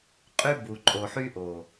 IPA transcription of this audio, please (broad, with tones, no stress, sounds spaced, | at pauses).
qʼ y˦ b u˨ ǃʼ o˨ ħ y˦ ʔ o˨